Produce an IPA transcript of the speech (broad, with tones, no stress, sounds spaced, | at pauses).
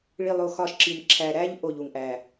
ɭ i˨ lˠ o˨ x ɒ˦˨ ʃ ǁ i˨ m ǁʰ æ˨ ɾ æ˦ ʎ ʔ o˦˨ ʎ u˨ ŋ ʔ æ˨